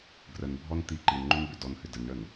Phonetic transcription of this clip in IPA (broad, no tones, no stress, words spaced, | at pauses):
ɡrənbʱɔn t̪i ǃinŋ͡ǃʏn bʏdɔnhʏ dənɳən